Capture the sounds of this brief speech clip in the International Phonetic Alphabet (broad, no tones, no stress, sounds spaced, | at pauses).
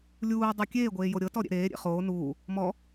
lʲ uː dˤ u kʲ eː ɡʷ eː j o ɾʲ ɤ t ɔ ɾʲ ḛ ɾ eː ɾʲ ḛ χ oː n uː | m ɔ